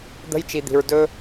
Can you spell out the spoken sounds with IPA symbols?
d̪ə̤˦jt͡ʃi˨d̪i̤˨ɹ dɵ˦

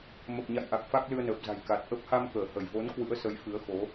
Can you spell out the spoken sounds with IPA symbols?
mə˨˩p̚ɲa̰˧˨jʔa˨˩k̚ fa˦˥k̚lɨ˧ə̯nəː˨˩p̚za̤˨˩j ka˨˩t̚ ʔə˦˥p̚ ha˧mkəː˧˩hə˧˩jvo˨˦n kwɨ̰˧˥ə̯sə˨˦jfɨ˨˦ə̯xo˨˦

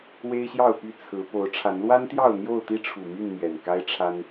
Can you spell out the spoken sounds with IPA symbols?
we˦ɪ̯ɕjɑ˥˨ʊ̯py˥˨ t͡sʰɹ̩˨˦ po˨˦ʊ̯ʈ͡ʂʰa˨˦n lwa˦nt̪jɑ˥˨ʊ̯ n̪jo˥˨ʊ̯t̪i˦ ʈ͡ʂʰu˨˩my˥˨n mɥɛ˨˩nka˦ɪ̯ʈ͡ʂʰa˦n

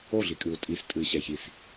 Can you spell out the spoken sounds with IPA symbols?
oɮikʼɨu̯ tʼistʼɨi̯ɕɛçis

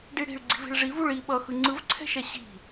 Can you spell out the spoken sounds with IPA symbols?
ɖiɽi̤ɭ ɡ͡ǀi̤vi̤ɭʐivuɭ i ɓʌxɯ ŋ͡ǀɯvǀʰɛ̤ʃɛ ɕi̤

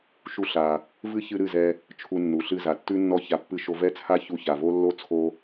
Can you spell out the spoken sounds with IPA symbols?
ʃu˧ɬa˨ | vɨ˦çɨ˧ ɾɨ˦˨zɛ˧ | t͡ʃʰu˧nːu˨ɬɨ˧ za˨tːʉ˦nːɔ˦ça˧ pːɨ˧ʃo˧vɛ˦t͡sʰa˦ çu˧ça˨vo˦ lːo˦t͡sʰo˧

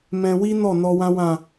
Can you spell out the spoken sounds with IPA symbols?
mɛ̃˧wi˦nɔ˦˨ nɔ˧wã˦wã˦˨

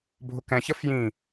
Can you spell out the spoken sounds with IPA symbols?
bʱʊkɛ̃çə fjĩ

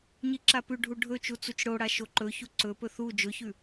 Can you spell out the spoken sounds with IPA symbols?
ɲiǁapʉɖʱu ɖʱɵt͡ʃu t͡sut͡ʃɽoɽa ʃoǃɵçu ǀɵpɵ θu d͡ʒɵçʉ

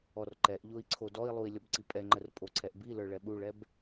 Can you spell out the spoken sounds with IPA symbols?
ɔrǃɛʔʎoi̯ ǀʰodɔi̯lˠui̯ lʲɔbǀipʼɛŋ͡ǃər pʼoǀʰɛʔbilə˞ ɭɛɓuɭɛb

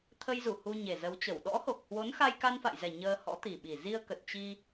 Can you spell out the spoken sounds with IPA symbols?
t̪ʰə˧jzu˧˩ hu˧ ɲe˨˩zə˨˦wt͡ɕə˧˩w ɗɔ̰˧˥ho˨˩k̚hwo˨˦nxa˧j ka˧nfa̰˧˨jzɛ˨˩ ɲəː˧hɔ̰˧˥ t̪i˨˩ɓi˨˩ zi˧ə̯kə˨˩t̚ t͡ɕi˧

